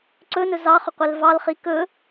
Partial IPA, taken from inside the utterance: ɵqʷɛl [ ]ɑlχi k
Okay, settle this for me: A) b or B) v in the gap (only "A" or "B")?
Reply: B